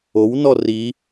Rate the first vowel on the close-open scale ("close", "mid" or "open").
mid